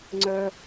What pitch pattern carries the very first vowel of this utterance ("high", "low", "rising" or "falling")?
low